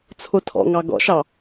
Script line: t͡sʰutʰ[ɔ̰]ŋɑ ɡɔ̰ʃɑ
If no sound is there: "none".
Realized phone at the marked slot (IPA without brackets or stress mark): ɔ̰